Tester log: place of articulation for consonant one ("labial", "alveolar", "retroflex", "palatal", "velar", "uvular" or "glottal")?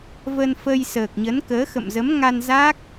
labial